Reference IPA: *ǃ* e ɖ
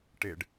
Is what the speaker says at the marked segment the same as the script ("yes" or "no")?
no